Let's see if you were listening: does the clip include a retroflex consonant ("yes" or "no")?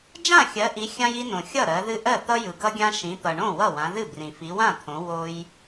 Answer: yes